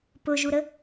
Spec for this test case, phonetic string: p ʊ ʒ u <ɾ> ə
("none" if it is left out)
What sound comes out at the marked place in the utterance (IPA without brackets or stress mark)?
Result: ɾ